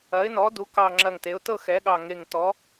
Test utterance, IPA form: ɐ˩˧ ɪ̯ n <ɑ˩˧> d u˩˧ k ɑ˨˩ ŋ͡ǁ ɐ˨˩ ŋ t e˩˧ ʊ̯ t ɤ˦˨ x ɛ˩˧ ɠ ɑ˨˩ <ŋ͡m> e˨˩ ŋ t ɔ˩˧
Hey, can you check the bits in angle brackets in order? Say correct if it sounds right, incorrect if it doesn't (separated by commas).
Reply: incorrect, incorrect